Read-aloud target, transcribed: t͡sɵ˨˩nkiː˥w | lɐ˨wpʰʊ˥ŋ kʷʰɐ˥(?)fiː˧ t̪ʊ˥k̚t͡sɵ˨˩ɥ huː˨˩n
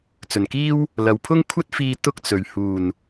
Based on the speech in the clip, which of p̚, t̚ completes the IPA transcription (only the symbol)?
t̚